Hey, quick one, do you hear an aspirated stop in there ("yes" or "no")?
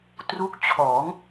yes